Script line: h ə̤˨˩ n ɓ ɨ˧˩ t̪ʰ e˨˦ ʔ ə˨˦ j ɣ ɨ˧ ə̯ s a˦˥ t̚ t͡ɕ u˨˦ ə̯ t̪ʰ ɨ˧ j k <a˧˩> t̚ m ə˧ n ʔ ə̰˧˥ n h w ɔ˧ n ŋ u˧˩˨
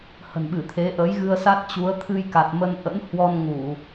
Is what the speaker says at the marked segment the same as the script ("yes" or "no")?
no